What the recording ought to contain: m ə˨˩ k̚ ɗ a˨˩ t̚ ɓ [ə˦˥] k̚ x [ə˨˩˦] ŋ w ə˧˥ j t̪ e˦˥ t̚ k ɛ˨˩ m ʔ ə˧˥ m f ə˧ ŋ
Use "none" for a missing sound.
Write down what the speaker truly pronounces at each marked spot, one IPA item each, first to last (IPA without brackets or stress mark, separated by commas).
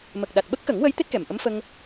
ə˦˥, ə˨˩˦